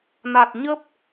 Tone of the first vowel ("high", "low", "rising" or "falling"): low